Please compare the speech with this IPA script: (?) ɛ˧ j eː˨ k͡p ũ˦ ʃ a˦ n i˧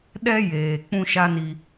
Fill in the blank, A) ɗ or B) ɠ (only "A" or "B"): A